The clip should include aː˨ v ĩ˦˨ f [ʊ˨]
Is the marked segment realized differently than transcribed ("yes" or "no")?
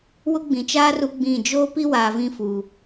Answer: yes